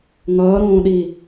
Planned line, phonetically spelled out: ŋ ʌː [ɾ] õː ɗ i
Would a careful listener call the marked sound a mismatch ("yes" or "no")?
no